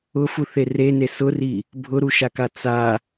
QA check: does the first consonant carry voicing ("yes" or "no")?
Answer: no